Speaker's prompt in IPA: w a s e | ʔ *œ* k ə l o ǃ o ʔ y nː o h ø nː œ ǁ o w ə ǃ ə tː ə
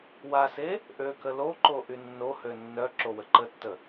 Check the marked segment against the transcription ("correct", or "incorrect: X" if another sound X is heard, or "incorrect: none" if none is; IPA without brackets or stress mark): incorrect: ø